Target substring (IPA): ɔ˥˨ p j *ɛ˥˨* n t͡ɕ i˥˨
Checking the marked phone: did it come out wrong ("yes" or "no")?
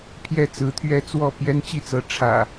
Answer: yes